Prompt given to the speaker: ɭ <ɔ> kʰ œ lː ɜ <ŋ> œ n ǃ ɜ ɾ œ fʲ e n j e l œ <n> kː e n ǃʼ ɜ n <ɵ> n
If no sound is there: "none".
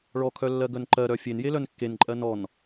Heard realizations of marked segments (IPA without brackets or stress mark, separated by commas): ɔ, ɡ, n, ɔ